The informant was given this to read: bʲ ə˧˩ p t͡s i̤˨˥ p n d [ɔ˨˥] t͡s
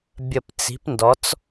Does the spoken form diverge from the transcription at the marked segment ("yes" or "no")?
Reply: no